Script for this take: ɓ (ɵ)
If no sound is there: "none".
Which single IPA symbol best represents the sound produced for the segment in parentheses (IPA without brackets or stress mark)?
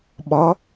ɔ